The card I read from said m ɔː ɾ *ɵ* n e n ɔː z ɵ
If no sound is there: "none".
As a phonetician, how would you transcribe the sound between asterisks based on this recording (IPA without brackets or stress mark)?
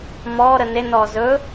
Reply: ə